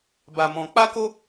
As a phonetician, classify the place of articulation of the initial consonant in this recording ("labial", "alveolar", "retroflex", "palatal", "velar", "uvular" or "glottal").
labial